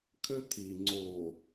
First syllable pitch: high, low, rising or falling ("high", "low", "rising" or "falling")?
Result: high